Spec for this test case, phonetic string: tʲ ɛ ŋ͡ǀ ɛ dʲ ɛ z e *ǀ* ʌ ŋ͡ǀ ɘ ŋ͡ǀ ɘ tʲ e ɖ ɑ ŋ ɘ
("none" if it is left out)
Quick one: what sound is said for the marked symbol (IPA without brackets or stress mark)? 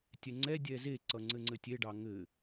ǀ